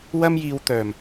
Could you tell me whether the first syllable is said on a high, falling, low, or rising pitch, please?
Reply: high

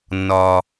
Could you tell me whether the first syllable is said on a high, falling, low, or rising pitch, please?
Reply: high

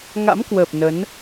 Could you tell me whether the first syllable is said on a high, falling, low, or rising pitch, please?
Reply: rising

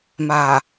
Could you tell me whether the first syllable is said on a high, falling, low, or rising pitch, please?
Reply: low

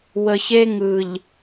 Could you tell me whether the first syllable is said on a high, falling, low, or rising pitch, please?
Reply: low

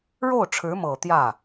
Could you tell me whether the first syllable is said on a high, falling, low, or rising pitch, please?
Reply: falling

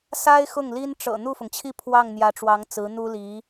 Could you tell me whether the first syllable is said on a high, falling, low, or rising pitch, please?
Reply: high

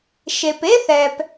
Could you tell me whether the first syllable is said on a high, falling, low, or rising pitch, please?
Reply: low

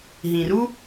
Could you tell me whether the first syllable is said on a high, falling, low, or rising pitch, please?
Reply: low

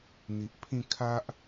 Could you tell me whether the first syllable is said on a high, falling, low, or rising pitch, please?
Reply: low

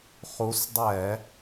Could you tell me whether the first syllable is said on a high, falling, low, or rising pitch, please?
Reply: rising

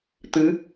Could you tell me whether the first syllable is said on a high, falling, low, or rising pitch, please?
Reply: rising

